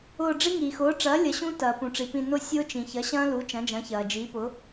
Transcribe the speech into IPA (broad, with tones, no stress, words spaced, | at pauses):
ʊː˧˩ɖ͡ʐi˦˥ ŋiː˩xʊː˩˥ʈ͡ʂɐː˩˥ lʲɐ˩˥ɕũ˦˥ tɐː˩pũ˩ʈ͡ʂi˩pĩ˧˩ nʊ˦˥ sʲʊː˦˥t͡ʃĩ˩ çɐ˩˥ɕɐ̃ː˦˥lu˩˥ t͡ʃɐ̃˩˥d͡ʒɐ̃˩˥çɐː˩ d͡ʒiː˩˥pʊ˩˥